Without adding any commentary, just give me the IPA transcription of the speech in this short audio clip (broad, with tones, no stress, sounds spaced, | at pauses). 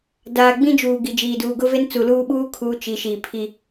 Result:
d aː˨ ɡ͡b ĩ˦ d͡ʒ uː˨ ɡ i˨ d͡ʒ iː˨ d uː˨ ɡ ʊ˦ v e˦ n t͡s u˨ l uː˦ ɓ uː˦ kʰ uː˦ t͡ʃ i˨ ʃ iː˨ pʰ i˦